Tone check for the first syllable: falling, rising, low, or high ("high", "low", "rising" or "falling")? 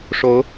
rising